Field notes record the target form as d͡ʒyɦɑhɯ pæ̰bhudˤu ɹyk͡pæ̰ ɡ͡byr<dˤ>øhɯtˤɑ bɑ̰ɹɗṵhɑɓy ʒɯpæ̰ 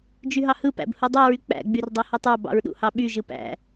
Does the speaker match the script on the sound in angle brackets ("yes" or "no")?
yes